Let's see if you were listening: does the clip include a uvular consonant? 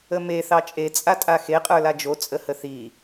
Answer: yes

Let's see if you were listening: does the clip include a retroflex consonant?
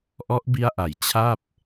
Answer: no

